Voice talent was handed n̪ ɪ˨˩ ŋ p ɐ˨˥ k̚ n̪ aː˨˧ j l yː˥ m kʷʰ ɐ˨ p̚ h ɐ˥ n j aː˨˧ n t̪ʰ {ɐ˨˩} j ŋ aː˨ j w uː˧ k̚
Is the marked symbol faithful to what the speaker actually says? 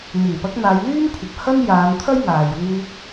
no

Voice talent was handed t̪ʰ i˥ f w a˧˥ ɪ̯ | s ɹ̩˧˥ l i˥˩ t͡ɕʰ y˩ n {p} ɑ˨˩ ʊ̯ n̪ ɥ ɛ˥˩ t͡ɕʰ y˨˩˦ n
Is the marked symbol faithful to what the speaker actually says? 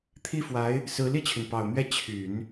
yes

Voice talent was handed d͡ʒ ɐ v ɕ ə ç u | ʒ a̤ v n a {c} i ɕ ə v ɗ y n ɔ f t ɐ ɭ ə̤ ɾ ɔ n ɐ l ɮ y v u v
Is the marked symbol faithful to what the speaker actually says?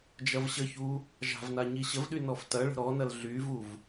no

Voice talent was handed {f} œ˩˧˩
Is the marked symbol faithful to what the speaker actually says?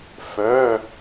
yes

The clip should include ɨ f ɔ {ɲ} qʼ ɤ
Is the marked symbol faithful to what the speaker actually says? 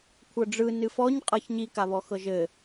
yes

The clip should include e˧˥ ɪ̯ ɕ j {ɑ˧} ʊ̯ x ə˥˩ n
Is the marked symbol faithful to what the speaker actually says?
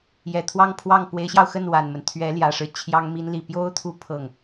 yes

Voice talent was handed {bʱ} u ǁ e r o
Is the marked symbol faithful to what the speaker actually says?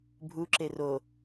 yes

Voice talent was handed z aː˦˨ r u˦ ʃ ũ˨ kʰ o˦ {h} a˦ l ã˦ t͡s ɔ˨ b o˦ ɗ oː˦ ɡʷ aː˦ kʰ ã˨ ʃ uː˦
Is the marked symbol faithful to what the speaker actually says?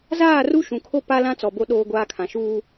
no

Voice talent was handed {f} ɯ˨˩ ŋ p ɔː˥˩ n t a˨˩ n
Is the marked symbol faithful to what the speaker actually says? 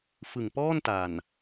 yes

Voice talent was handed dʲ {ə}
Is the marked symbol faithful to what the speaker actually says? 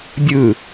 no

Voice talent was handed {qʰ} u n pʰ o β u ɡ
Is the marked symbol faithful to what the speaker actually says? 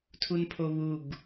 no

